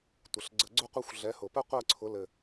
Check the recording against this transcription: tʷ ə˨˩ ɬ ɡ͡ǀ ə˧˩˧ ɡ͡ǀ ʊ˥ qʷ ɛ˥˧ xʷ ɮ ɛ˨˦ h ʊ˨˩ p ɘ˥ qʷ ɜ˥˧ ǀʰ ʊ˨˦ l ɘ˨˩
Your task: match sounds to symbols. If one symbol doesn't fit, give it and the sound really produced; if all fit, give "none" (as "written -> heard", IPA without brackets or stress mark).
none